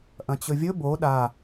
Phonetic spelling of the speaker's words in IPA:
ʔ ɐ̃ t͡ɕ ɵ vʲ ɵ b o ɗ a

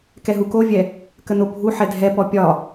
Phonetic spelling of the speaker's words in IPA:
k ɛ ɦ u k o vʲ ɛ | k ə n o bʱ u ħ ɛ dʱ ɛ p ɔ pʲ ɒ

